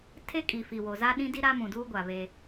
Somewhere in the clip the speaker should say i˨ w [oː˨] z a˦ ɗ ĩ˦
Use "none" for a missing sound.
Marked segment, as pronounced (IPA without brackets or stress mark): o˨